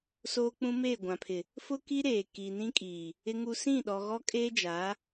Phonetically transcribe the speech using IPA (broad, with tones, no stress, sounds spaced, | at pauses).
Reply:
s oː˦ k͡p ũ˦ m e˦˨ ɡʷ ã˨ pʰ ɪ˨ | f ʊ˦ k i˦ ɾ eː˨ k iː˨ n ĩ˦ kʼ iː˨ | ɪ˦ ŋ u˦ s ĩ˦˨ ɗ ɔ˨ ɣ ɔ˦ kʼ eː˦ d͡ʒ a˨˦